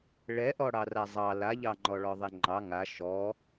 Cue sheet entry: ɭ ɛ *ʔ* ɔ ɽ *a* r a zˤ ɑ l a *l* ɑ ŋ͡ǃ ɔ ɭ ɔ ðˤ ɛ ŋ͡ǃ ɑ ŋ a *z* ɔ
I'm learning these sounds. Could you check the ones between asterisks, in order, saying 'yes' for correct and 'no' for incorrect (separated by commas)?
yes, no, no, no